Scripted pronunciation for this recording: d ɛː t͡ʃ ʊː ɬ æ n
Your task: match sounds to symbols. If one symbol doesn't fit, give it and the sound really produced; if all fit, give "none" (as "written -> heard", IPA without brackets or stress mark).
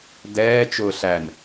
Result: none